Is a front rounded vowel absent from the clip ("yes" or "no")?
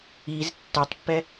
yes